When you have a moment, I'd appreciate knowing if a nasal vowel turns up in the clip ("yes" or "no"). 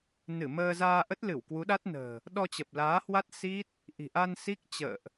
no